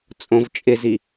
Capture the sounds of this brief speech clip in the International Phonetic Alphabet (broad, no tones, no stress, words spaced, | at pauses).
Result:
t͡sʼõvt͡ʃʼɪzi